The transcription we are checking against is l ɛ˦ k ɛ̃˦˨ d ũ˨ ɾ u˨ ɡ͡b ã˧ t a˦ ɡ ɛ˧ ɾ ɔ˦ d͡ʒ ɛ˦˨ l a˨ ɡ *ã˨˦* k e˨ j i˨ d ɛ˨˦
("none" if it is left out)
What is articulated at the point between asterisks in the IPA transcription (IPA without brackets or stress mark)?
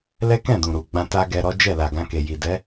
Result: ã˧